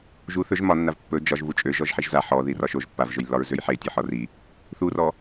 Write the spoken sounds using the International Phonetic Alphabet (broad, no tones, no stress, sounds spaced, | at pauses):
ʒ u θ ɵ ʒ m ɒ nː a v pː ɵ d͡ʒ ɒ ʒ v u t͡ʃʼ ø ʒ ɔ ʒ ħ i ʒ z a ħ ɔ ð i r ɒ ʃ o ʒ pː a v ʒ ɵ j lː ɒ ɹ z ø j ħ e tʲ ɔ ħ ɒ r i | θ u r ɔ